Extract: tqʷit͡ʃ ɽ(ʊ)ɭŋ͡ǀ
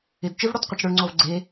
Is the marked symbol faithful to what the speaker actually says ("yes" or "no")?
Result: yes